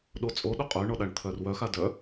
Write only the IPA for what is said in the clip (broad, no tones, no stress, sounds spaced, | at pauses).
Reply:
ɗ o t͡sʼ o ɗ o qʼ œ ɳ ɔ ɗ a ɳ t̪ʰ œ r w œ x a d œ